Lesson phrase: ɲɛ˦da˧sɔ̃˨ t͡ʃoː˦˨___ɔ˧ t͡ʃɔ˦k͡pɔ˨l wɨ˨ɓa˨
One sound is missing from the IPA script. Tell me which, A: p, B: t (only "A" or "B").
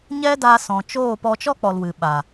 A